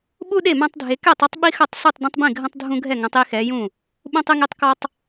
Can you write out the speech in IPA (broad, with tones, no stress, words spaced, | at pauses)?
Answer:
ɓu˦ ɗe˥˩mã˦tˤdʱe˨˦ kɛ˥˩tˤɘ˦tˤ ɓi˦xɐ˥˩tˤsu˥˩tˤ dẽ˦tˤbĩ˥˩ɡʱɐ̃˦tˤ dʱũ˦ɡʱɛ˥˩ŋɐ̃˨˦tˤ i˦xɛ˨˦jũ˥˩ | ɓũ˦tˤɨ˦ŋe˦tˤkɔ˦tˤ